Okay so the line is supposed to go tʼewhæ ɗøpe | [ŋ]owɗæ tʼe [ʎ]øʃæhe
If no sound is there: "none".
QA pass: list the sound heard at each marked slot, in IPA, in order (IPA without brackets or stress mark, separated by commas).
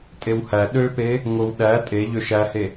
ŋ, ʎ